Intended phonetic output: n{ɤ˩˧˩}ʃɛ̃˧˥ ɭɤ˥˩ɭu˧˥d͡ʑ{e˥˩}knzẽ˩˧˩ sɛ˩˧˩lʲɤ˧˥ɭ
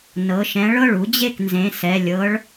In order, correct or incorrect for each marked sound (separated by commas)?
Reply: correct, correct